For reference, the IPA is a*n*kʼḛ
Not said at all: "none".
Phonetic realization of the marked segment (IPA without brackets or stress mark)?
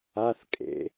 θ